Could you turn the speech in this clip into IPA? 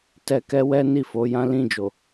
t ɛ˧ k ɛ˦ w ɛ˦ n i˦˨ f o˨˦ j ã˦ l ĩ˦˨ d͡ʒ o˨

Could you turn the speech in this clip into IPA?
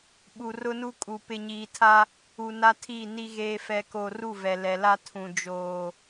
ɓ u˨ r ʊ˦ n u˦ kʼ u˨ p ɪ˨ ɲ iː˨ tʰ a˦ | u˨ n a˦ tʰ i˦˨ n i˦ ɣ eː˦ f ɛ˦ k o˦ r u˦˨ v ɛ˨ l ɛ˨ l a˦ tʰ ũ˨ d͡ʒ oː˨

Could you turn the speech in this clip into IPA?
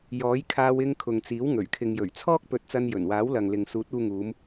j ɔː˨˥ j kʰ aː˧ w ɪ˧ ŋ kʰ ʊ˨ ŋ t͡s iː˨˥ w ŋ ɵ˨˩ ɥ kʰ ɪ˨ ŋ j ɵ˨˩ ɥ t͡sʰ ɔː˥ k̚ p ɵ˨˥ t̚ t͡s ɐ˧ n j ɵ˨˩ n w aː˨˥ w l ɐ˨ ŋ l ɪ˨ ŋ s uː˨˥ t̚ uː˧ ŋ uː˨˧ m

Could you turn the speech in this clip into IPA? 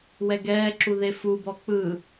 w ɛ ɡ ɛː ǁ u ð e f u b ɔ k͡p ɯ

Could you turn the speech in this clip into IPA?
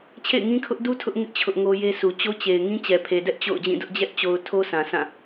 t͡ɕʰ ḛ˦˨ ɪ̯ ŋ ĩ˦ kʰ ʊ˦ ʔ d u˦ tʰ ʊ˦ ʔ ŋ ɪ˦ ʔ t͡ɕʰ ʊ˦ ʔ ŋ o˦ j e˦ sʰ u˨ t͡ɕ o˦ t͡ɕ e˨ ɪ̯ ŋ ĩ˦ t͡ɕ ɛ˨ pʰ e˨ d ɛ˦ ʔ t͡ɕ o̰˦˨ ʊ̯ d͡ʑ ĩ˦˨ d ʊ˦ ʔ d͡ʑ ɛ˦ ʔ t͡ɕ o˨ ʊ̯ tʰ o˦ s ã˨ sʰ ã˦˨

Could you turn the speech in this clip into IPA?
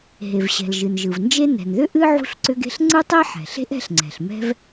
ɦ e˩ v ɕ ɛ̤˩ l ʒ ɨ˩ n ʒ ɯ˩ v n d͡ʒ e˥ n ɛ̤˩ n ð ʏ˥ ʔ ɨ˥ ʕ ṳ˥ ɬ ǀ ʏ˥ ɡ e̤˥ ɬ ŋ͡ǀ ɯ˥ tˤ e˥ ħ ɛ̤˩ ɬ e̤˥ ʔ ɛ̤˥ ɬ ŋ͡ǀ ɛ̤˩ ɬ m ɛ̤˥ v

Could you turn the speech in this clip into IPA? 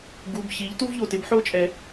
ɡ u˩˧˩ b ç i˩˥ ʎ t u˥ v ʎ o˩˧˩ t ɪ˩˥ b ħ o˥ t͡ʃʼ ɛ˨˩˦

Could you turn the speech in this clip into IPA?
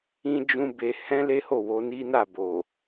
ĩ˦ d͡ʒ ũ˦ b e˧ h ɛ̃˦ l e˦ h o˦˨ w o˧ n i˦ n a˦˨ b o˨

